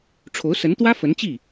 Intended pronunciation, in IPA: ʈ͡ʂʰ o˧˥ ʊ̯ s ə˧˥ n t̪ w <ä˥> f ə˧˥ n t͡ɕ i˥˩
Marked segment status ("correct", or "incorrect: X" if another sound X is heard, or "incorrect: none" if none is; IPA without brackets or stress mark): correct